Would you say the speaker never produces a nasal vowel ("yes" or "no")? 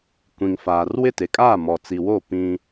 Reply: no